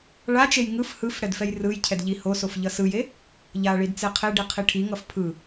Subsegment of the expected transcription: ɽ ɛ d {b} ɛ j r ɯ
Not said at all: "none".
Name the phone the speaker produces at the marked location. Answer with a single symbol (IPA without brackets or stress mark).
f